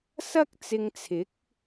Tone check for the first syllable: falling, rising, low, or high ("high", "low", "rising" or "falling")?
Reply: high